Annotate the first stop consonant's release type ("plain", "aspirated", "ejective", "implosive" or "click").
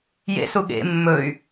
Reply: implosive